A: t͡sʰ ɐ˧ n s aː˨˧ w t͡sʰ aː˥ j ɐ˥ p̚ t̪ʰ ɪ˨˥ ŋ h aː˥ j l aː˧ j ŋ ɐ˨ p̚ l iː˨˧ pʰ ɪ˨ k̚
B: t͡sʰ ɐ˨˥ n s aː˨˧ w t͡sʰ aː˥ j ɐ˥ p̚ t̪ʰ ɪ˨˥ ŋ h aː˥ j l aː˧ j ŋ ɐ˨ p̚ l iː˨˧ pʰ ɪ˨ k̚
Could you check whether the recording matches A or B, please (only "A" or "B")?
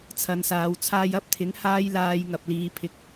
A